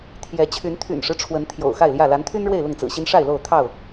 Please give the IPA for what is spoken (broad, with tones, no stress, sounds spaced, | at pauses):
t̪ʰ j ɛ˨˦ t͡ɕʰ y˨˦ n t̪ʰ y̰˨˩ n ʂ ɻ̩˦ ʈ͡ʂʰ w ə˨˦ n t̪ʰ j o̰˨˩ ʊ̯ x a˥˨ ɪ̯ l j ä˥˨ l a˨˦ n t̪ʰ y˦ n ɻ w e˥˨ ɪ̯ l ʊ˥˨ ŋ t͡s ɹ̩˨˩ ɕ i˦ n ʂ a˥˨ ɪ̯ l o˥˨ ʊ̯ t̪ʰ ɑ˥˨ ʊ̯